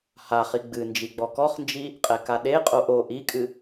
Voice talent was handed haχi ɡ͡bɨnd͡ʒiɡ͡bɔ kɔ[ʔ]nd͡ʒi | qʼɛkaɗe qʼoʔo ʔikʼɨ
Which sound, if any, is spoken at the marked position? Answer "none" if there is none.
χ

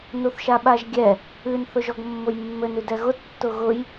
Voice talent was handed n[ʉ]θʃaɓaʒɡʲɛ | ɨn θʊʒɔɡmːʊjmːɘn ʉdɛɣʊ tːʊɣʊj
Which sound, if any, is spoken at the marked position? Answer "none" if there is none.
u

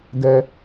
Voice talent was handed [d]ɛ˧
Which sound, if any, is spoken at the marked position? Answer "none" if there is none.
d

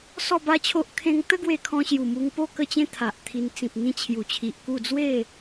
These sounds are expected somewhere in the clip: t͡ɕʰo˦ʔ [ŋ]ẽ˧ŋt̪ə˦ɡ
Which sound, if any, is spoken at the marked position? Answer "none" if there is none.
kʰ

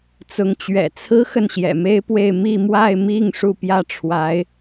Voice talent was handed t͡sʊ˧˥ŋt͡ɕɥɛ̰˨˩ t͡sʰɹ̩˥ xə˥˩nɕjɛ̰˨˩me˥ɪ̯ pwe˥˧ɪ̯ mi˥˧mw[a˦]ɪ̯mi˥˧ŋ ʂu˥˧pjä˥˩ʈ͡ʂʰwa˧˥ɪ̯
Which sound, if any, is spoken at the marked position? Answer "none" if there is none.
a˥˧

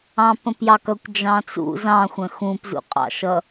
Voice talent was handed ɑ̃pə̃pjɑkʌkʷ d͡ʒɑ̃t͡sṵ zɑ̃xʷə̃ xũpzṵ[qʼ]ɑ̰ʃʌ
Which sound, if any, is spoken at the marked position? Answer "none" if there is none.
qʼ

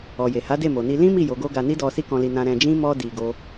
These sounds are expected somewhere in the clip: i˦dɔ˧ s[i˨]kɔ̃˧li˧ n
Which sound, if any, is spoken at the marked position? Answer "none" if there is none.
i˦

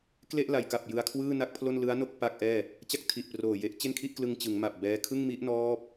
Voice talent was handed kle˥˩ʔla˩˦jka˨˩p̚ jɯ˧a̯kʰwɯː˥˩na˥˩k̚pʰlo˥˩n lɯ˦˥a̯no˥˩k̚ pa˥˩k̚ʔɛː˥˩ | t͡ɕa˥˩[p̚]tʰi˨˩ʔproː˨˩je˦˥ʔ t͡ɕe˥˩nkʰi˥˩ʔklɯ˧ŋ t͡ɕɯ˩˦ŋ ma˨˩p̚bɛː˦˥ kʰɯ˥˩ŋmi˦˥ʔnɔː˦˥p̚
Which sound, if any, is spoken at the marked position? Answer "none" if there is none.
k̚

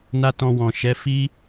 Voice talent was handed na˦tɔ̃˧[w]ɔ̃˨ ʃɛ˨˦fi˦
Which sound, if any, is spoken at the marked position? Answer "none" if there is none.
w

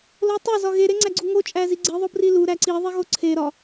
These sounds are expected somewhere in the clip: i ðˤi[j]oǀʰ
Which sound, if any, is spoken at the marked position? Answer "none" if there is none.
ɣ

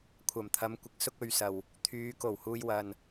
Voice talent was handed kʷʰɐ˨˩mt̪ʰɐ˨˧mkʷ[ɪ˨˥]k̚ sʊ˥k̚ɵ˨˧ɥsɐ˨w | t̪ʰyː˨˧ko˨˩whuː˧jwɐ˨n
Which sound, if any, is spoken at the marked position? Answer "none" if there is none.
ɪ˨˥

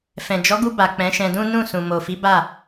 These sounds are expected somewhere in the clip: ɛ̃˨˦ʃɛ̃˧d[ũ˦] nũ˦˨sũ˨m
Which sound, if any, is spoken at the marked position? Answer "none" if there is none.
ũ˦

